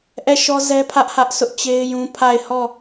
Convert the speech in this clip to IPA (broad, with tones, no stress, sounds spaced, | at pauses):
ʔ ɛ˦˨ ʃ ɔ˦ z ɛ˦ pʰ ä˦ ʔ h ä˦ ʔ s ʊ˦ ʔ t͡ɕ e˦ ɪ̯ j ũ˦ pʰ a˦˨ ɪ̯ h ɔ˦˨